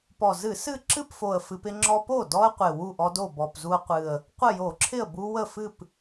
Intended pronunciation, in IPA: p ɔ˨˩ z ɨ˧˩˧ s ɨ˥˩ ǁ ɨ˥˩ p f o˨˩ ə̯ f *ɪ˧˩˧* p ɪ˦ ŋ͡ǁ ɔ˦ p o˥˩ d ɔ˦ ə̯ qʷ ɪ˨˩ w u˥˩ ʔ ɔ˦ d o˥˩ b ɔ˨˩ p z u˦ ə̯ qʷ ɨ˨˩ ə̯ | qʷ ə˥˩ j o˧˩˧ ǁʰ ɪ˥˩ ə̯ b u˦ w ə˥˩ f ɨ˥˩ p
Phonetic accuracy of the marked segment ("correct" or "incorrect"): incorrect